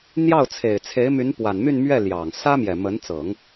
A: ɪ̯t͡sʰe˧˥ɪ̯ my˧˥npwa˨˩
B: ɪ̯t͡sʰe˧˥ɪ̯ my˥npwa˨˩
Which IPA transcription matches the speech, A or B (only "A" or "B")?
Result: A